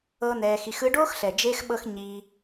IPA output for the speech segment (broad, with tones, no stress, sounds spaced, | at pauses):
ɤ˦ n̪ ɛː˧ x i˧ x ɯ˧ ɖ oː˦ x ɬ ɛ˨ d͡ʒ eː˦ x ɓ ɤ˦ x ɲ iː˦